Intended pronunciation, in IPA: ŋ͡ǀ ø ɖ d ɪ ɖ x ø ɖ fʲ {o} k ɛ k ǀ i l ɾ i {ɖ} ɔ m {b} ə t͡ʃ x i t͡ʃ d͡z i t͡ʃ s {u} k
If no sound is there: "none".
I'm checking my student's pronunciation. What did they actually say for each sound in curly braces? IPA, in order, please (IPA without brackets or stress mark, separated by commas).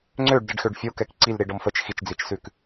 o, ɖ, f, ʉ